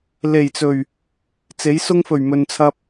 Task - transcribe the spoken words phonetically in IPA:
le˨˩jt͡sɵ˨˩ɥ | t͡se˨˥jsʊ˥ŋfɵ˨˩ɥ mɵ˨nt͡sʰɐ˧p̚

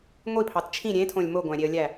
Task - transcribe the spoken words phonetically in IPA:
ŋʷipʰɑt t͡ʃʰĩ ɾʲẽtʰõlʲ moɡʷæ̃ɾʲeə̯lʲæ

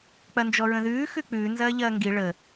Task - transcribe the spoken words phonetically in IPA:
k͡pɐnd͡ʒɔɹə̃ðʉː xʉk͡pʉː nzɐːʎɐːŋɡi ɭə

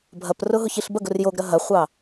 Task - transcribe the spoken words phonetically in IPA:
bʱɐprʊ ɦʊçiɬbɐɡʊr joɡɾɐ ɦɐχʷɑ

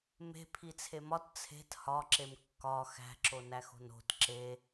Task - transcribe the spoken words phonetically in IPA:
me̤ pʰit͡sʰemɒt t͡sʰe̤t hɒǁem kːɒ xæ̤ǁonæxo̤n o̤t ǁe

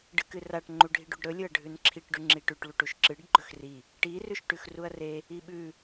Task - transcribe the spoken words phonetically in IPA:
ɖɨkɨraʈ ŋ͡ǃuɖʱiɖuɖɾɵ lʲɵɐ̯ɖʱʉnǁʰiʈ ɖʉŋ͡ǁiʈʉʈ ɭuʈuʃǁɨɖ ɡ͡ǃɵxri | ʈi rʉʃʈʉxruɐ̯re | iɓʉ

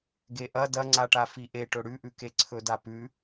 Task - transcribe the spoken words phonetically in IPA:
ɡeʔɐ dɐŋ͡ǀaʈa fiʔe ʈɵɽʉʔʉke ǀʰɵdapʉ

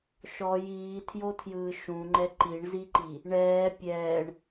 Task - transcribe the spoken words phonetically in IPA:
ʃɔj iːtʰjotʰjɯː ʃũŋ͡ǃɛ ǃiɳziǃi | ɳɛː pʲɛːɳ

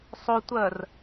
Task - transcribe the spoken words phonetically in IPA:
sˤotʷɜr

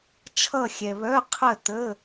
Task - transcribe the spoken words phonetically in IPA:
t͡ʃʰʌ˥˨xʲɛ˨ βœ˧˥˧qʰə˥˨tə˧˥˧

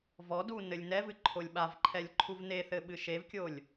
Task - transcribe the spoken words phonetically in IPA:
vɔdu nɘlʲnɛvɨ ǃʰolʲɓavǃʰɛlʲ ǃʰuvneθɘ ɓɨʃevkʲolʲ

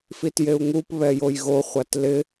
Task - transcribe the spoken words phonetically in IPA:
fitjeu̯ŋup βɛjojɣo χʷatlɪ

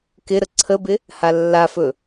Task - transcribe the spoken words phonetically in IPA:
kɪ ɾəǀʰəbɪ | halːafɵ

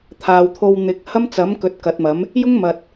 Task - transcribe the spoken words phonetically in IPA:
t̪ʰaː˨wt̪ʰo˧w n̪ɪ˨˥k̚ hɐ˥mt͡sɐ˨˥mkɵ˨t̚ kɐ˨˥t̚mɐ˨˥m | jʊ˥ŋmɐ˨t̚

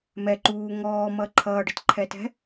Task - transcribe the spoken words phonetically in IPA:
mɛǃuː ŋɔːmʌ ǃʰʌːɖətǃʰɛtɛ̤

